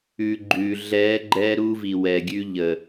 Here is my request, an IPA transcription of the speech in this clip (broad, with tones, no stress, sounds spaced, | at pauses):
ʉ˨ ɡ͡ǃ ʉ˨ ɮ ɛ˨˦ ɡ͡ǃ ɛ˦ ɾ u˦ v i˨ w ɛ˨ ɡʲ ʉ˦ ʎ ə˨